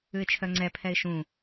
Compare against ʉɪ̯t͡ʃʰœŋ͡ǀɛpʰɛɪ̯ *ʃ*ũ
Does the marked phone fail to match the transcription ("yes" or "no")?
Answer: no